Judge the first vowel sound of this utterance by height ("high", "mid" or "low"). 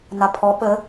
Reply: low